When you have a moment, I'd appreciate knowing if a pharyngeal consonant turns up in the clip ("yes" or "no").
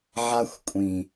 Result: yes